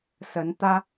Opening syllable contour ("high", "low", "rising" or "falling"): rising